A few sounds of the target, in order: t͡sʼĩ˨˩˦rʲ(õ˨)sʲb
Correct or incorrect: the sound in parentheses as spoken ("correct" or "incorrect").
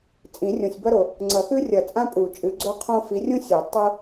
correct